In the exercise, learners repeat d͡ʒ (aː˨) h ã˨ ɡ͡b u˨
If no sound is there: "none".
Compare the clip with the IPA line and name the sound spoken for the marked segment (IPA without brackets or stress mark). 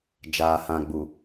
aː˨